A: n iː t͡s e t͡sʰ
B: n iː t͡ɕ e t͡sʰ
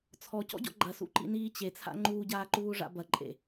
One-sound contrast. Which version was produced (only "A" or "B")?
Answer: B